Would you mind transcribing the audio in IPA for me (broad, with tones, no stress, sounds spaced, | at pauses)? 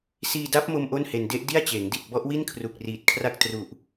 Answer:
s iː˧ d a˦˥ p̚ m o˧ m ʔ o˥˩ n h e˧ n d e˦˥ ʔ d i˥˩ a̯ t͡ɕ eː˩˦ ŋ d i˨˩ t̚ b ɔ˦˥ ʔ w i˥˩ n kʰ r u˨˩ k̚ r iː˨˩ t̚ kʰ r a˥˩ k̚ t r u˨˩ ʔ